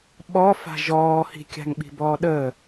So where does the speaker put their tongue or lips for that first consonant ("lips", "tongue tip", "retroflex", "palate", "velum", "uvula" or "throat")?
lips